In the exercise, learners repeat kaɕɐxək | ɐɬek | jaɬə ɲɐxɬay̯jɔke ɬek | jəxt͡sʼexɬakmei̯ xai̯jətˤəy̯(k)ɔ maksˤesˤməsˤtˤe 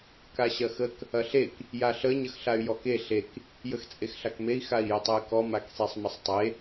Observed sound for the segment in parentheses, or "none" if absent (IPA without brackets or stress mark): k